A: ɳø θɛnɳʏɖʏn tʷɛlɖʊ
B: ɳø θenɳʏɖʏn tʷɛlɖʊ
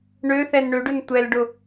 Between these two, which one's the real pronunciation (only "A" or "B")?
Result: A